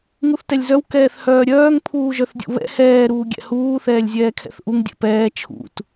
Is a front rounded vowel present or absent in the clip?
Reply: present